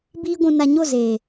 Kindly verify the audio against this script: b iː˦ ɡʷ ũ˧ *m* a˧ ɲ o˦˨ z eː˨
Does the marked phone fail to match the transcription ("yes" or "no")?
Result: yes